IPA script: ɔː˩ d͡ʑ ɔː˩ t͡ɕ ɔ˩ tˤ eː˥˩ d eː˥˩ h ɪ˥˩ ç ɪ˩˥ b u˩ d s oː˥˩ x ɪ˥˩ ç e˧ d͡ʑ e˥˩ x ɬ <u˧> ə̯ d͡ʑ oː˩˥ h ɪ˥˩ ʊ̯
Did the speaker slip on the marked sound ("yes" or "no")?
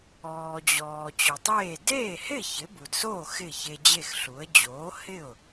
yes